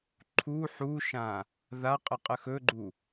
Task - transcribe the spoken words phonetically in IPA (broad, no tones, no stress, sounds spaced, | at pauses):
ǃʰ u ħ u ʃ ã | ð a qʼ ə qʼ ə x ɵ ɡ͡ǃ u